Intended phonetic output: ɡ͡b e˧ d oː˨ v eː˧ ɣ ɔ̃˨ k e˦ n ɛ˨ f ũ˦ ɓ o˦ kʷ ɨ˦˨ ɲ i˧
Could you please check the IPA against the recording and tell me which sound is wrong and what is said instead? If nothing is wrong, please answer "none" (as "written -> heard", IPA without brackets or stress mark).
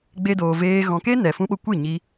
none